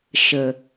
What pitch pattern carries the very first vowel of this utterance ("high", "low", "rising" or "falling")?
low